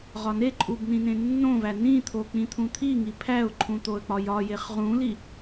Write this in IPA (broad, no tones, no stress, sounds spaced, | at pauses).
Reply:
ʁ ɒ n e ǃʼ u b n ĩ n ẽ nː õ v æ n ĩ t̪ʰ o k͡p ĩ t̪ʰ ũ t̪ʰ i ŋ i pʰ æ ʊ̯ ǃʰ ũ t̪ o ə̯ k͡p ɒ j ɒ j e χ ʁ ũ l i